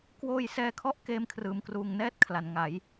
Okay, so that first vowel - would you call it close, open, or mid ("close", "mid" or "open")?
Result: mid